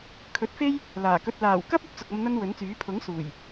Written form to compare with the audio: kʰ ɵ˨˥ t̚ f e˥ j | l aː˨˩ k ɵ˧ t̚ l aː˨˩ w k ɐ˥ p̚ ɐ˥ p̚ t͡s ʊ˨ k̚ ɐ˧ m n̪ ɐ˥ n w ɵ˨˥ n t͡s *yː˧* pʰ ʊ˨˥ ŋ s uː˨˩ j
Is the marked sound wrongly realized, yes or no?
yes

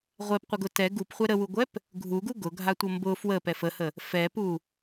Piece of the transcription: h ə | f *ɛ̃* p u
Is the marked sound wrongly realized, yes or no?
yes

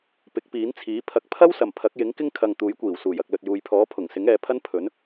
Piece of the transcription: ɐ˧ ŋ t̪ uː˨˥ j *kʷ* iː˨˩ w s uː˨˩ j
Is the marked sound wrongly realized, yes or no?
no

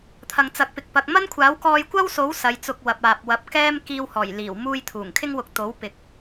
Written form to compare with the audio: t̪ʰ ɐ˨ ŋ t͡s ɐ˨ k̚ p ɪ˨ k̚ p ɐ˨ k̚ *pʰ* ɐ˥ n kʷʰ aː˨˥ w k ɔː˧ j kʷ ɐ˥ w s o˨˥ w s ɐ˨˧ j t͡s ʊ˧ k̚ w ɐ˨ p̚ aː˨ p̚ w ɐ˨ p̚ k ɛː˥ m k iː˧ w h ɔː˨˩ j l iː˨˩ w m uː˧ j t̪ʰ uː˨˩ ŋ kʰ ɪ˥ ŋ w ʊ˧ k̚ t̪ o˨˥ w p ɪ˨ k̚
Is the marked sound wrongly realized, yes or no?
yes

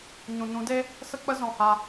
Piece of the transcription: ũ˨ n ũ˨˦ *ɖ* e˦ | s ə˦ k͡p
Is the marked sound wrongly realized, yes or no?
yes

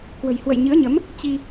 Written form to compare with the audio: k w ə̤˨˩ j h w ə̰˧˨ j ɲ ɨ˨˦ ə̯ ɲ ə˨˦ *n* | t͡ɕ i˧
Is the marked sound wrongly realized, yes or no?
yes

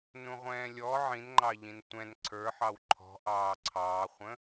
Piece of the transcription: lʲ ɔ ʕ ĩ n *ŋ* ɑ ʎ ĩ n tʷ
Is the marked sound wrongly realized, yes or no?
yes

